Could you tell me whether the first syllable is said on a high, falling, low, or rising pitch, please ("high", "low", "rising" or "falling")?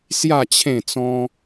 falling